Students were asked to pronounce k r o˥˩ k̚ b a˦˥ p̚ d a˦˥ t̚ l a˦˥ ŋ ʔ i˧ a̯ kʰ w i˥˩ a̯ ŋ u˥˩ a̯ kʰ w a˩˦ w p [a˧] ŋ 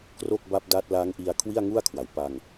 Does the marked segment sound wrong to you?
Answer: no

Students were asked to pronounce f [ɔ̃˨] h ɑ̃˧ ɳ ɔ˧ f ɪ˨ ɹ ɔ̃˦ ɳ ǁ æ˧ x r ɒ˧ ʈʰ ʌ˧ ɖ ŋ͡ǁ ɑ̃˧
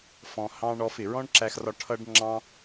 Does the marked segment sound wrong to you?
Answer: no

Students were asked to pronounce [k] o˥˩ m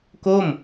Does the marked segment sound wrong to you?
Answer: no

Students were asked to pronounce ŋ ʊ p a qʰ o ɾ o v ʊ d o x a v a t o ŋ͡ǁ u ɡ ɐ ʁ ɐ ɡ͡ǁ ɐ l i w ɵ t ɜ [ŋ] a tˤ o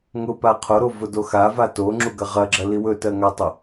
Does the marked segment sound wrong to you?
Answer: no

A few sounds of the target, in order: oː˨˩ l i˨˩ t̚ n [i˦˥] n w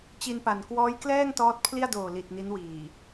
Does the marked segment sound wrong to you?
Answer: no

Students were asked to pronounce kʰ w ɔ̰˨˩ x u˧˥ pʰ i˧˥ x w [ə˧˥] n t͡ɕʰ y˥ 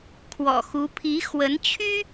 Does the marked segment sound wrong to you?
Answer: no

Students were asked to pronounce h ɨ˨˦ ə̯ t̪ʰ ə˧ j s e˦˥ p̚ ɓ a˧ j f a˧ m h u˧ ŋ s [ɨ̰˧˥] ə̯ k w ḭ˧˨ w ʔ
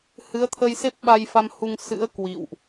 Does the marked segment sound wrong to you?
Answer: no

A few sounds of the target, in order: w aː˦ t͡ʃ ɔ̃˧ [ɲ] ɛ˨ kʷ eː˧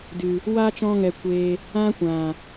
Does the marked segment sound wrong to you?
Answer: yes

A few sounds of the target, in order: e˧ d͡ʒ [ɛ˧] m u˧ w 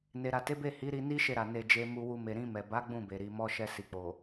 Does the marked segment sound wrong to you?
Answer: yes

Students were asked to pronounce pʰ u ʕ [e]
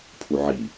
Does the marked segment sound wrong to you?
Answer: yes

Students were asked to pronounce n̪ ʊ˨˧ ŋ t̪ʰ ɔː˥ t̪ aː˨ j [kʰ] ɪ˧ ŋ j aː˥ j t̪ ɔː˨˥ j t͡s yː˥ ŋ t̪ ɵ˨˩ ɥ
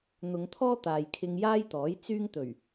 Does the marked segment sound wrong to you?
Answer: no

